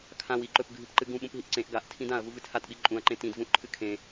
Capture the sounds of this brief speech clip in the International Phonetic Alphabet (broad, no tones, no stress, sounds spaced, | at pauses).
kʰ ã w i ǃ ɵ p ɡʱ ɨ p ǃ ɨ ɡ ũ ɓ ũ p ɦ i ʔ ǀ ẽ ʔ ɡ a ʔ tʰ ĩ d ã ɐ̯ v u v ɨ tʰ a t ɓ i ǃʼ ũ ɐ̯ ǃ ẽ t ĩ d v ũ ʔ ǃʰ ɨ kʰ ẽ